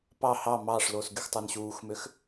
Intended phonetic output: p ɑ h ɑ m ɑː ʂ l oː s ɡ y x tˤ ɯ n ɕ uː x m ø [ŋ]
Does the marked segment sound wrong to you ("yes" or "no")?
yes